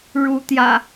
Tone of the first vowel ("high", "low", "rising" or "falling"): rising